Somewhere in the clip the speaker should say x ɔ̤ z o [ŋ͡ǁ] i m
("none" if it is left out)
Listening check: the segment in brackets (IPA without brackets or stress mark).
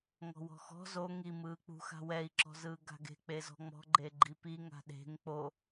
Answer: ŋ